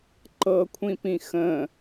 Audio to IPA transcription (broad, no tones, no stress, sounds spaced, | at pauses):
ǃ ɤ kʷʰ ĩ p ĩ x ə̃